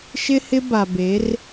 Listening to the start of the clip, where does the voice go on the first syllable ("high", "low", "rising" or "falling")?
high